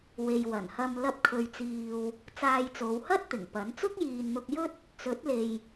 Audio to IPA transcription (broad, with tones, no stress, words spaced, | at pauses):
we˨jwɐ˨˩nhɐ˧m lɐ˧p̚kʰɵ˨ɥt͡siː˨w | t͡saː˧jt͡so˨˧w hɐ˥t̚t̪ɪ˨˩ŋ pɐ˨˥n t͡sʊ˥k̚jiː˨nn̪ʊ˧k̚jɵ˥t̚ | t͡sɵ˨˥t̚le˨j